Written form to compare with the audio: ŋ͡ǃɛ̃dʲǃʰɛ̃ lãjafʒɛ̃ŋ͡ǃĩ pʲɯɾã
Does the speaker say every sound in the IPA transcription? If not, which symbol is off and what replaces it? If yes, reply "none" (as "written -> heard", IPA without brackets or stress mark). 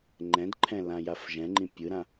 dʲ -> d